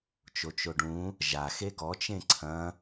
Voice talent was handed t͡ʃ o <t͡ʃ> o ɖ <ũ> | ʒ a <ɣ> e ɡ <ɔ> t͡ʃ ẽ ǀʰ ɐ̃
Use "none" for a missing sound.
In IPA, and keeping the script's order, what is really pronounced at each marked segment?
t͡ʃ, ũ, x, ɔ

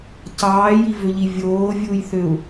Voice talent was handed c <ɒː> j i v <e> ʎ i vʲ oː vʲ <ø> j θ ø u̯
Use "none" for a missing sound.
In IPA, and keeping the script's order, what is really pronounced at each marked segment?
ɑː, ø, u

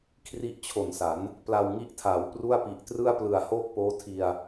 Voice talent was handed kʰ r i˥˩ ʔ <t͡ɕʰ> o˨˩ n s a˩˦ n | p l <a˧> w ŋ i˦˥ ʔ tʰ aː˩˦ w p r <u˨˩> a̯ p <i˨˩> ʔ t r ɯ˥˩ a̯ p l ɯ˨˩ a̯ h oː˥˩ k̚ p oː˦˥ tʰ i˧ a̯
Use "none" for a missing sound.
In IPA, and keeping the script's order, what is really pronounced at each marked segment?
t͡ɕʰ, a˧, u˥˩, i˨˩

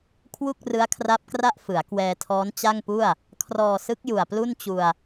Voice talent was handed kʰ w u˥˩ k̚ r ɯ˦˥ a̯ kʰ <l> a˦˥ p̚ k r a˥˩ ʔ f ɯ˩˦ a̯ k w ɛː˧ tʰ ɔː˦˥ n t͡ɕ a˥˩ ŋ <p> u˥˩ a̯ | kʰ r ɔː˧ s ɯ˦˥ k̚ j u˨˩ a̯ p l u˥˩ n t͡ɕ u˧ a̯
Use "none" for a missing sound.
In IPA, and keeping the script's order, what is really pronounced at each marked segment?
r, p

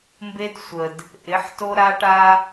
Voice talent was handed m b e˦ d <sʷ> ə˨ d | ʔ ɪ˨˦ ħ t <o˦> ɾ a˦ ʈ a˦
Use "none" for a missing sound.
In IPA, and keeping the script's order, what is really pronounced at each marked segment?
sʷ, o˦

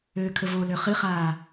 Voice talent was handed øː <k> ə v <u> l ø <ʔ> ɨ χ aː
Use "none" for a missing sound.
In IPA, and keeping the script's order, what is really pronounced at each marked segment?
kʰ, o, χ

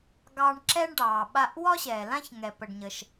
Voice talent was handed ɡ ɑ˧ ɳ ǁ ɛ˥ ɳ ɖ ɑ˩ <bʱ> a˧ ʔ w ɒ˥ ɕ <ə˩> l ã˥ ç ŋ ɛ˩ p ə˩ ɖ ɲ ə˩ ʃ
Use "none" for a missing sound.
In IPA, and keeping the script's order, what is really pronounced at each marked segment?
ɓ, ɛ˩

